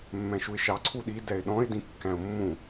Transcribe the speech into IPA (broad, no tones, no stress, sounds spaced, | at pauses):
mː ɛ̃ ʃ u ɪ̯ ʃ ɑ ǀʰ u ɗ i d ɛ ɪ̯ ɗ ɔ̃ ɪ̯ d ĩ kː æ̃ ʊ̯ mː ũ